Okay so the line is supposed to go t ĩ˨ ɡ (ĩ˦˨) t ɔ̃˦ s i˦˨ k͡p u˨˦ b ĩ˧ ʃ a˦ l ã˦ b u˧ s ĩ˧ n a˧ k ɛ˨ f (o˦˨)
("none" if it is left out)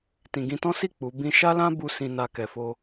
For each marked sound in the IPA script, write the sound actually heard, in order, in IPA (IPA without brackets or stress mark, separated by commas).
ĩ˧, o˧